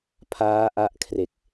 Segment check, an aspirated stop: present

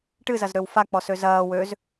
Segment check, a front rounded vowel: present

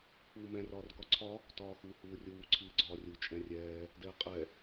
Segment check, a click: present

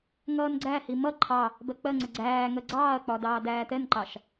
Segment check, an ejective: absent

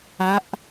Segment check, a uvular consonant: absent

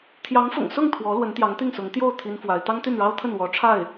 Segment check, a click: absent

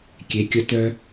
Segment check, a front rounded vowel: present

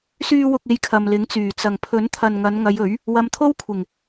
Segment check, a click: absent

